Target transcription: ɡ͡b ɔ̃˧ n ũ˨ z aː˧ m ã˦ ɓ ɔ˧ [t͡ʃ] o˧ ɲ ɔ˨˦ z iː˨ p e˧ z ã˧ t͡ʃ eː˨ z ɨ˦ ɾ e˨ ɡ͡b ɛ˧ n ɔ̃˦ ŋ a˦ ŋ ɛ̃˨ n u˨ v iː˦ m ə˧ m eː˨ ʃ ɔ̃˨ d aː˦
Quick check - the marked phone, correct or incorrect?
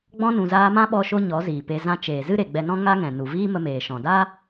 incorrect